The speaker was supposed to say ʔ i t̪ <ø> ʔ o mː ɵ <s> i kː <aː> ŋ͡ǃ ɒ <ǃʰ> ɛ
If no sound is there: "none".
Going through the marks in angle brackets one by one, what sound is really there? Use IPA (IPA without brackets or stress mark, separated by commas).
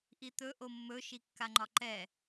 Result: ɵ, ʃ, a, ǃ